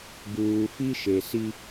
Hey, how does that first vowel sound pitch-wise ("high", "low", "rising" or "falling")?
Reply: low